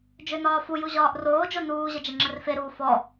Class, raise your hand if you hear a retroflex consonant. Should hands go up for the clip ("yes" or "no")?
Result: no